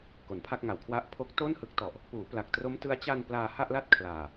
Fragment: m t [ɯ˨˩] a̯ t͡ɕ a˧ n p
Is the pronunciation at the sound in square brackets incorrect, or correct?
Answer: incorrect